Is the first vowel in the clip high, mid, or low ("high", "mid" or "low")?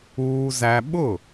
high